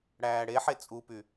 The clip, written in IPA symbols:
ɽæːɽeħe t͡sʼupy

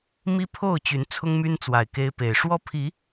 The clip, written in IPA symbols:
mi˦pʰo˥˨ʊ̯t͡ɕy˨˦n t͡sʰʊ˦ŋmy˦nt͡swa˨˩ɪ̯ ke˦ɪ̯ pe˨˩ɪ̯ʂwɔ˦pʰi˨˦

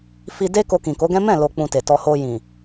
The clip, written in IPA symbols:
fi˧ de˦ ko˧kĩ˨ko˨˦ɡɛ̃˦ mɛ̃˦˨lo˨k͡pũ˨ te˨tɔ˧ ho˧jĩ˨

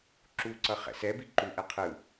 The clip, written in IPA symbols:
ǁu ǀʌχɛ̰sɛbi ǃuʔɛ qʰɯ

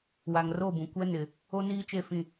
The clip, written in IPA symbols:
wa˨ŋro˦˨bũ˨ kʷɛ˦ nɪ˨ | o˦niː˦t͡ʃe˦˨fĩ˦˨

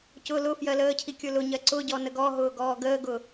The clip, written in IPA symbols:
cʊ lʊ fjɜləːcʰi kʲʊlʊɲɜ ǀʊɟɔ nəɡɔɦʊː ɡɔːɡəːɡʊ

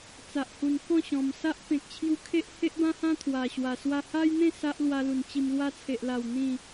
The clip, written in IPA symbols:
t͡sa˨ʔhu˨˩nkɔ̃˥˧ɕɔ̃˨˩m sa˦ʔ pẽ˨k̚t͡ɕʰju˧kʰe˦ʔ he˦ʔbã˦hã˦ t̪ʰwa˨˩ɕwa˨˩ swa˧ha˦jn̪ẽ˥˧ sa˦ʔlwa˧lu˨˩n t͡ɕi˧m lwa˧t͡sʰe˨ʔla˨˩w n̪ĩ˥˧

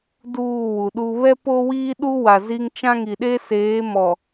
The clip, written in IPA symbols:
duː˦˨wu˨ɗu˦ βɛ˦po˦wiː˦ɗu˦ wa˨zi˦ŋ t͡ʃã˦ŋi˨ɗe˦ seː˨˦mɔ˨

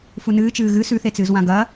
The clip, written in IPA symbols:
funɨːt͡ʃɨː ɣɨ sʉθet͡sɨːz wãɡɐ

